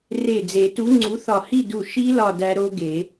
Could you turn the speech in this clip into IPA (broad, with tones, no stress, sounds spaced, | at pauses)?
r e˧˩ d͡z e˨˩˦ t u˨˥ ŋ͡ǀ u˨˥ θ ɒ˧˩ h i˥˨ d u˧˩ ʃ i˦˥ l ɒ˥˨ d æ˦˥ ɾ o˦˥ ɡ e˨˩˦